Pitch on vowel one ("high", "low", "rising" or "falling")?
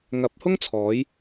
rising